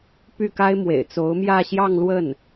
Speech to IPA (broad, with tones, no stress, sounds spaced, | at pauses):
p y˥˩ k a˥ ɪ̯ m w ḛ˨˩ ɪ̯ t͡s o˧˥ ʊ̯ m j ä˥˧ ɕ j ɑ˥˧ ŋ l w ə˥˩ n